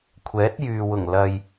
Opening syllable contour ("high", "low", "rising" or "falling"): rising